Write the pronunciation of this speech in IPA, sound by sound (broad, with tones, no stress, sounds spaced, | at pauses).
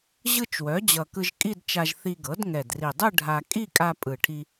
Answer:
ʑ ɯ˥˧ t͡ʃ w œ˩˥ d͡ʑ ʌ˨˩ k ɯ˧ ʒ kʼ i˥˧ d t͡ʃ a˧ ʒ θ i˧ ɡ ɤ˩˥ d ŋ ɛ˨˩ d r i˨˩ dˤ ɯ˥˧ ɖʱ a˧ kʼ i˥˧ kʼ a˧ pʼ ɯ˨˩ ʈʰ i˧